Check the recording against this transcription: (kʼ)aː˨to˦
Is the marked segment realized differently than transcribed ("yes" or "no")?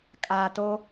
no